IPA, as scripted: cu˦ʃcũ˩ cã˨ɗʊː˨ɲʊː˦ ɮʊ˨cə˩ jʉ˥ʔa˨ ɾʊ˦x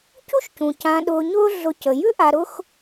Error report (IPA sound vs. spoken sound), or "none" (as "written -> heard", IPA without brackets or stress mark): none